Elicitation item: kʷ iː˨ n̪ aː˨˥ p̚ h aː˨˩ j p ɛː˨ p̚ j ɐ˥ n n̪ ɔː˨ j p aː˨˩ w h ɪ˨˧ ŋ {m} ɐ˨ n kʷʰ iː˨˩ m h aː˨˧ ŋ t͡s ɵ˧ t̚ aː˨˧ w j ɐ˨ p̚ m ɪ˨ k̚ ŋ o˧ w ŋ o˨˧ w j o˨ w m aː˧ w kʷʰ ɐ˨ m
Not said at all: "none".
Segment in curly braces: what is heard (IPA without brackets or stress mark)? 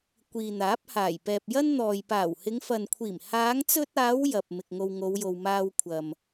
f